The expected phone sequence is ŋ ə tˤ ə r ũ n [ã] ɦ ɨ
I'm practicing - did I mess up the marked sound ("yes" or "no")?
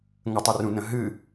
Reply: yes